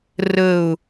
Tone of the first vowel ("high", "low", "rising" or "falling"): falling